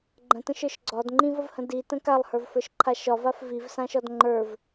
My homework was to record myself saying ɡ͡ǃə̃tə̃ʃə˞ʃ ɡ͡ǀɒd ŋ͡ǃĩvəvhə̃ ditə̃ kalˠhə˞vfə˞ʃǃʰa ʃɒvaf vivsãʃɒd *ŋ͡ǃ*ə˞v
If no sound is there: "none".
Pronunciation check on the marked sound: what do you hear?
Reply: ŋ͡ǃ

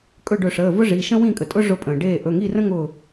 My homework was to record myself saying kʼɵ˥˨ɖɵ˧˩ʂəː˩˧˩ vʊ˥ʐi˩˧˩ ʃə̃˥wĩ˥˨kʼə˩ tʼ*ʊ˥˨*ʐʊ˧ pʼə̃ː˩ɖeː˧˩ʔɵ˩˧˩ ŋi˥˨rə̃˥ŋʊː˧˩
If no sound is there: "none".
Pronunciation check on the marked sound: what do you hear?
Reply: ʊ˥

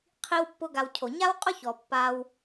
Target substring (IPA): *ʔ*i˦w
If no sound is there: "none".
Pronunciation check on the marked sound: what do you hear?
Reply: qʰ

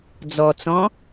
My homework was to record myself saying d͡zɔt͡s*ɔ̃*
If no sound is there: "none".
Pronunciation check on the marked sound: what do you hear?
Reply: ɔ̃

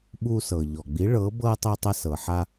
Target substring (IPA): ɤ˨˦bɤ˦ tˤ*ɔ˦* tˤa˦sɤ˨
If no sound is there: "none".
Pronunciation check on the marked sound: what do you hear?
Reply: ɤ˦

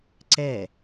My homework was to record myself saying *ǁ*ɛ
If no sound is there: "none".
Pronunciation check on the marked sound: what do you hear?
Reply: ǀ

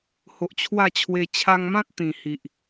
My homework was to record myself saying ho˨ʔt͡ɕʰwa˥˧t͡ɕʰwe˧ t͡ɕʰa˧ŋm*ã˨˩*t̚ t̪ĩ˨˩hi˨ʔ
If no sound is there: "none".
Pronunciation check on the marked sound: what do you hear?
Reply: ã˦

